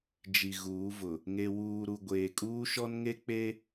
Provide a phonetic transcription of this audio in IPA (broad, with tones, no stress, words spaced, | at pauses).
d͡ʒi˨ɣuː˨˦vʊ˨ | ŋe˨wuː˨ɾu˨ ɡʷeː˨kʼuː˦ʃɔ˦nŋe˦ k͡pe˦